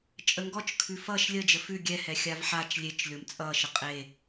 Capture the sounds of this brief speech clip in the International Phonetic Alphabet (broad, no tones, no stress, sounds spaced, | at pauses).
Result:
t͡ʃʼ ə ŋ ɡ ɔ t͡ʃ kʰ ʉ f ʌ ʃ lʲ ə d͡ʒ ə f ʉ ɡʲ ɛ h ɛ xʲ a v ħ a t͡ʃ lʲ e t͡ʃ lʲ o m t͡sʼ ʌ ʃ ə qʼ e